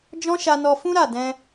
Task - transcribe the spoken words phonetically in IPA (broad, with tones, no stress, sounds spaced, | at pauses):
d͡ʒ ɔ̃˦ ʃ a˧ n ɔ˧ f ũ˦ ɾ a˦˨ d ɛ̃˧